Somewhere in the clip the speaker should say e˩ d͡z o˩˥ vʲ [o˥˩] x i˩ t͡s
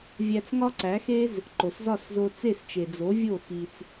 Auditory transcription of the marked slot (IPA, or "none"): o˥˩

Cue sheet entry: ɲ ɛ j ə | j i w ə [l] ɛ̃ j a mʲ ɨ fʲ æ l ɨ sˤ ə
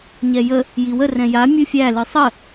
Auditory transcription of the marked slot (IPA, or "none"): r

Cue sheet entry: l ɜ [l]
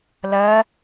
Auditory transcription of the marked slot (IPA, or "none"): none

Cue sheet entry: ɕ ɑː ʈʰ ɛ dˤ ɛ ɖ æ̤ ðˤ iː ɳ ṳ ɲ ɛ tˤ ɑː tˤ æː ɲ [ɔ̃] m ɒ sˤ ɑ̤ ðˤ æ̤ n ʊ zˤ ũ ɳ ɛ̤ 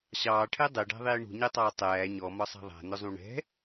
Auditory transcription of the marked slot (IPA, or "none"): ɔ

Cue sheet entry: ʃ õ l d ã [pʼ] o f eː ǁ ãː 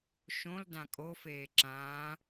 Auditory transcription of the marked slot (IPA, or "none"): kʼ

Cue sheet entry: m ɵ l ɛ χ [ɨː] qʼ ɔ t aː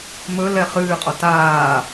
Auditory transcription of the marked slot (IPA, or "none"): ɨː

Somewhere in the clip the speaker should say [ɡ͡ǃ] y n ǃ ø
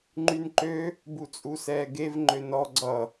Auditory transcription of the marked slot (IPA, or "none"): ŋ͡ǃ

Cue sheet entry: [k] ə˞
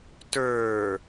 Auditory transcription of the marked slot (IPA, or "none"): t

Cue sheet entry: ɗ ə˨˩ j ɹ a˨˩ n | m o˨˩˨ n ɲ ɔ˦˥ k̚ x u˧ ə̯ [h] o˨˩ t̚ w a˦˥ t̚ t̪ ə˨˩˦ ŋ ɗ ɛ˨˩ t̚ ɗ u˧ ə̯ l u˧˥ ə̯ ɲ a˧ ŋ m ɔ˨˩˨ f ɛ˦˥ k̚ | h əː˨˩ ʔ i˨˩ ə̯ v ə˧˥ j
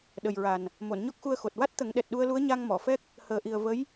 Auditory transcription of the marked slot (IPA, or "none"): x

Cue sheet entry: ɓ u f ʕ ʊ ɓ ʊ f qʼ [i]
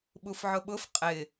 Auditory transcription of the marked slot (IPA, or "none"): ɪ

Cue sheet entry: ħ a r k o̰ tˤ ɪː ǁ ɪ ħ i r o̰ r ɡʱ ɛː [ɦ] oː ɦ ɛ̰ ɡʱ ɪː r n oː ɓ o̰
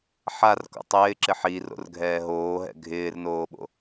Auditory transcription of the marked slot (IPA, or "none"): ɦ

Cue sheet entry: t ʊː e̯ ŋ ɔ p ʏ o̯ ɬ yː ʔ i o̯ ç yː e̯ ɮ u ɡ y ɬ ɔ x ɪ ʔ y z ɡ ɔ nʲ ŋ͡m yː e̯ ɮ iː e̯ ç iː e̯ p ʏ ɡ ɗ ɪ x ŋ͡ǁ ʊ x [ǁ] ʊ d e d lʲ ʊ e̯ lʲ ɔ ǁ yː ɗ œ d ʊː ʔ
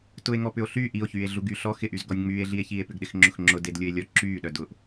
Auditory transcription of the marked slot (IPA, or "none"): ŋ͡ǁ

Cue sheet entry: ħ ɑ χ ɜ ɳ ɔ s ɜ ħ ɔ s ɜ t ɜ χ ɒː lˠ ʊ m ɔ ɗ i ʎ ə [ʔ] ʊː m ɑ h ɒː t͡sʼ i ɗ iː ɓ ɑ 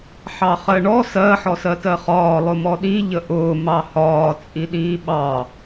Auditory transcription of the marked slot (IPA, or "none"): ʔ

